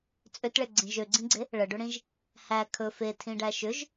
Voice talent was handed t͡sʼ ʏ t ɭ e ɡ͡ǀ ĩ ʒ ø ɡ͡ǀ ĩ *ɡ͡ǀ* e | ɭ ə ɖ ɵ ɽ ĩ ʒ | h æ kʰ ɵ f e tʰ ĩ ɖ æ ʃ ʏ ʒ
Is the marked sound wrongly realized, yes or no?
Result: no